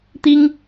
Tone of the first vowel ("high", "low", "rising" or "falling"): high